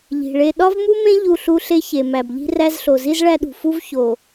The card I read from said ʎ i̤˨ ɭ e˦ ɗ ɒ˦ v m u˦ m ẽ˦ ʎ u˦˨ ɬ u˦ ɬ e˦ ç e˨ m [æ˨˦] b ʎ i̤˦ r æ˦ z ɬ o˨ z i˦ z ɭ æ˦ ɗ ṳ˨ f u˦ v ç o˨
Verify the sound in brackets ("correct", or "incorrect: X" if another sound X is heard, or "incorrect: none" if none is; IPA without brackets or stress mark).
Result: incorrect: æ˨